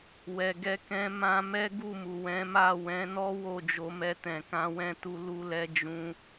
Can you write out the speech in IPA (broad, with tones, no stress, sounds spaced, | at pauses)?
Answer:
w ɛ˨ ɡ ɛ˧ k ɛ̃˧ m ã˧ m ɛ˦ ɡ u˦˨ m u˨ w ɛ̃˨˦ m a˦˨ w ɛ̃˨˦ n ɔ˦ w o˦˨ d͡ʒ o˨˦ m ɛ˧ t ɛ̃˨ k ã˨˦ w ɛ̃˦˨ t u˧ l u˦ l ɛ˦ d͡ʒ ũ˦